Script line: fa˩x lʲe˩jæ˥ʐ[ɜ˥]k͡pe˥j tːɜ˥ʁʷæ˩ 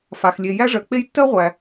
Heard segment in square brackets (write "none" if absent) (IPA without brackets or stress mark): ɜ˩